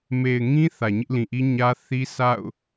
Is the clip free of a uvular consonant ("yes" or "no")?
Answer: yes